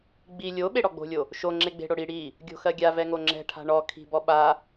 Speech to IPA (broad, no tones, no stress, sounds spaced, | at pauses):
ɡ͡b i lʲ o ɓ e ɽ ɔ ɡ͡b o̤ lʲ o | ʃ o ŋ͡ǁ e ɡ͡b e̤ ɽ o ɽ i ɽ i | ɡʲ o̤ x ɜ ɡʲ a v ɛ ŋ o ŋ͡ǁ ɛ̤ ʈʰ a̤ ɳ ɔ kʰ i̤ b ɔ ɓ a